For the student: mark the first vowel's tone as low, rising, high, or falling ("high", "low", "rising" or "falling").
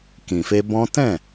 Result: low